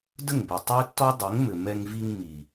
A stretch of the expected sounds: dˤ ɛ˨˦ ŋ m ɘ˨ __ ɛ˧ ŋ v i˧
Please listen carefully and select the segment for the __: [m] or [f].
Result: m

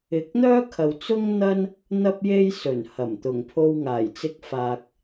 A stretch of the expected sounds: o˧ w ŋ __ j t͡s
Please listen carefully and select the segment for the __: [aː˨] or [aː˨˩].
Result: aː˨˩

